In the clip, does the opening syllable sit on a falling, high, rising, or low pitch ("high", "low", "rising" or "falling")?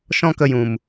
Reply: high